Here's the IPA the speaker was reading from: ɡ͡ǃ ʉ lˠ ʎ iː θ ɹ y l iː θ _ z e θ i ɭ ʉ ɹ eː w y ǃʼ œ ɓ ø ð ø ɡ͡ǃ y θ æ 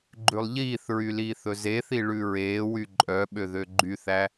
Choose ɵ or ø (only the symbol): ɵ